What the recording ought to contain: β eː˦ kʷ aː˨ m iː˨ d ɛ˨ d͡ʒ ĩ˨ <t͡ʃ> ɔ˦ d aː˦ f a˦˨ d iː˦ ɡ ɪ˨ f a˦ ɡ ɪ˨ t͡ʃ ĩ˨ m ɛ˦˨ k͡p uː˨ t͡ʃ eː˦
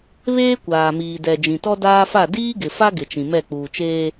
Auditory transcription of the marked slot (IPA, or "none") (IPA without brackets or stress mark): t